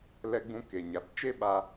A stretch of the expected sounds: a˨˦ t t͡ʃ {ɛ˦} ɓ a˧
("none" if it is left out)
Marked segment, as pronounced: e˦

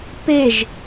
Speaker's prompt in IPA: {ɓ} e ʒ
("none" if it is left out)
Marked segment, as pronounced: p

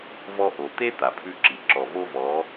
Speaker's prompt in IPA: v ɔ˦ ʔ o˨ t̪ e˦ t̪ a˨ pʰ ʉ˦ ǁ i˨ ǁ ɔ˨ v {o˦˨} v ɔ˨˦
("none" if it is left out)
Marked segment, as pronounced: o˦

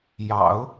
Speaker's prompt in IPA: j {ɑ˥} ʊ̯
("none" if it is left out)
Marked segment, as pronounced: ɑ̰˨˩˦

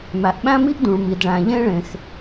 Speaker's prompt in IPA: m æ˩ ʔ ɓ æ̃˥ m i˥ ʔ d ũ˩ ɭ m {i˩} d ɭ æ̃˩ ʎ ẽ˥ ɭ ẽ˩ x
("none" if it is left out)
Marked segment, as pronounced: i˩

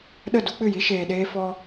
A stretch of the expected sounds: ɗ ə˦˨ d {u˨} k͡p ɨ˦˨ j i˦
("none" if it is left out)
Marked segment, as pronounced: u˦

